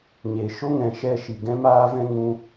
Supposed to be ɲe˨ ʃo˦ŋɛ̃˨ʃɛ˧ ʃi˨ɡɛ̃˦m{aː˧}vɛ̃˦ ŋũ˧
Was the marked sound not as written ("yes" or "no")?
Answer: yes